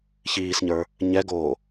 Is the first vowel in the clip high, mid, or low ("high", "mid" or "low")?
high